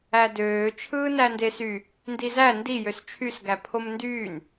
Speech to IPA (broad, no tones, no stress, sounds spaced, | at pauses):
æ d øː t͡ʃʰ ɯː n æ n d e s y | n d i z æ n d i j ø s t͡ʃʰ y s ɡ æ pʰ o m n d yː n